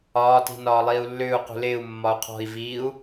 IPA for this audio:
ɒː t i̤ n ɒː lˠ iː u̯ lː ʏː u̯ q ṳ l ɪː u̯ mː ɒ u̯ qʰ ɔ̤ i̯ v iː u̯

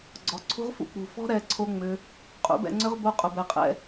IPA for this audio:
ɡ͡ǀ ɔ˨˦ ǀʰ ṳ˦ ʁ f ṵ˦ k͡p ṳ˧ f ɔ̤˦ ɾ ɛ˧ ǀʰ o˦ ŋ͡m ʏ˦ | qʼ ṵ˨˦ b ɛ̰˧ ŋ͡ǀ ʏ˦ ʁ b o˦ qʼ ʊ˧ b ɛ˧ qʼ ɛ̰˦

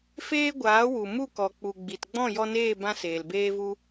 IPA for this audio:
f eː˦ ɡʷ aː˨˦ w u˨ m u˦˨ k ɔ˨ k͡p u˨ ɡ͡b i˨ t ɡ͡b ɔ̃˦˨ j ɔ˧ n eː˦˨ b ã˦ s eː˨ l b eː˦ v u˦

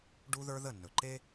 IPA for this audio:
ɖ u˦ ð ə˞˦ ð ə˦˨ nː ɵ˨ ǃ e˦

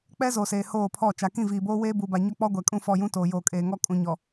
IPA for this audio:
k͡p ɛ˦ z oː˨ s eː˨ h oː˦˨ pʰ ɔ˦˨ t͡ʃ a˨ k ĩ˦˨ v iː˨ b oː˦ w eː˦ b u˨ b a˨ ɲ ɔ˦ k͡p ɔ˦ ɡʷ ɛ˨ kʼ ũ˦˨ f ɔ˦˨ j ũ˦ t oː˨ j oː˨ kʼ eː˨ ŋ ɔ˦ kʼ ũ˨˦ ɲ ɔ˨

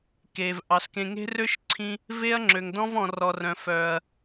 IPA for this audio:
k eː˨ v ʔ ɑ˨ s k ẽ˧ ŋ e̤˦ r ø˦ ʃ ǀʰ ĩ˧ | v e˦ ɐ̯ ŋ͡ǁ ø˨ ŋ d ɔ̃˦ v ɔ̃˧ r ɔ˧ r œ̃˨ f œː˨ ɐ̯

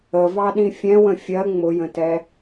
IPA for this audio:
ə v ɑ ɗ ĩ fʲ ɛ̃ w ə̃ fʲ ɜ ŋ͡m ʊ j ə̃ t ɛ

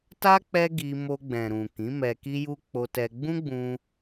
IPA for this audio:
t a˦ k͡p ɛ˦ ɡ i˧ m o˧ ɡ͡b ɛ̃˨ ɾ ũ˨ k ĩ˨˦ m ɛ˧ k i˦ j u˦ k͡p o˧ t ɛ˧ ɡ͡b ũ˦ ɡ͡b ũ˧

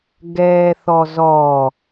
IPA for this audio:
ɡ ɛː θ ɔ z ɔ

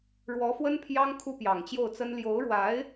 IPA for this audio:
ɻ w ɔ˧˥ f w ə˥ n pʰ j ɑ˥ ŋ kʰ u˥ p j ɑ˨˩ ŋ t͡ɕ j o˥˩ ʊ̯ t͡s ə˥ n l j o˧˥ ʊ̯ ɻ w a˧˥ ɪ̯

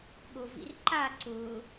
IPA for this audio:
ɠ o v ḭ r ǃ a ǀ ʊ

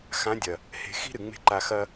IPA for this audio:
x ã˨˦ dʲ ɐ˨ | h e̤˧ x i̤˦ ɾ ɨ˨ ŋ͡m e̤˧ ǃ a˧ x ɐ˧

